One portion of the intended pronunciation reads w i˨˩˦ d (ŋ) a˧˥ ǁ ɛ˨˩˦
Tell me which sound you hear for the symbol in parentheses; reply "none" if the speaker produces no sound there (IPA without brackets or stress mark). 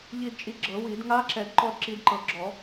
ŋ